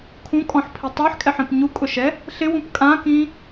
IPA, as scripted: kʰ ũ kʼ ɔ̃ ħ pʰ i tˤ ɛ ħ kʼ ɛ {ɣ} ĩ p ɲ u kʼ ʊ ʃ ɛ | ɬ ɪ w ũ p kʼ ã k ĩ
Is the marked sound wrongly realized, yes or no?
yes